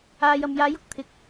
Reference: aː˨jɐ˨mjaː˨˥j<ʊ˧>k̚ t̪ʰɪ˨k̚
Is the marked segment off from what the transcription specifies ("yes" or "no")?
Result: no